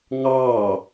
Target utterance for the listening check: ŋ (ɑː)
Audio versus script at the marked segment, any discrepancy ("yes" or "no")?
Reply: no